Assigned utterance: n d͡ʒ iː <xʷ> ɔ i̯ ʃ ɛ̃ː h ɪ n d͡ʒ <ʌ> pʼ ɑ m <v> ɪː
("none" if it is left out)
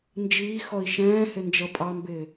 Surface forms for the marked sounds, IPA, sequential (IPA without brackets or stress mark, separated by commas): x, ʌ, b